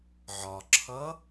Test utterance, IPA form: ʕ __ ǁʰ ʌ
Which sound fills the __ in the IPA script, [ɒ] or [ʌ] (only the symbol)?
ɒ